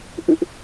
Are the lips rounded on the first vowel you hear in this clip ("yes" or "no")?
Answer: no